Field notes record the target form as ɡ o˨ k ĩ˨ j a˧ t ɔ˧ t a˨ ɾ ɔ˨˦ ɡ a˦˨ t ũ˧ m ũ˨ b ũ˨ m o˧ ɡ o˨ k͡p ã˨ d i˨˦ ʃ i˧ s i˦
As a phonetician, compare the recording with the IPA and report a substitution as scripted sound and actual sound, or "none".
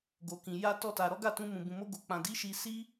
none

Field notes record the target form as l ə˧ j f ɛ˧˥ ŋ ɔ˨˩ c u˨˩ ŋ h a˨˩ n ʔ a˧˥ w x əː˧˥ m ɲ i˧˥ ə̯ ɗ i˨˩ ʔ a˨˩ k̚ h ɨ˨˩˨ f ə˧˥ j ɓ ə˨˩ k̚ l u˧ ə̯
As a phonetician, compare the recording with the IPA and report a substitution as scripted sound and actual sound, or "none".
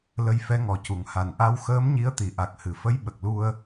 ɗ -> t̪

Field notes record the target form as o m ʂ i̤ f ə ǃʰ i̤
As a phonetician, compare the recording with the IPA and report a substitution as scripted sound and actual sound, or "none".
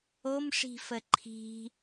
none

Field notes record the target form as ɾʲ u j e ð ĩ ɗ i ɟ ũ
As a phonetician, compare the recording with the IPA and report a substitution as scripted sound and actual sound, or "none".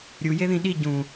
none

